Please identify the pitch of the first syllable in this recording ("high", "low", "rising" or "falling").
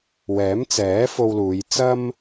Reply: rising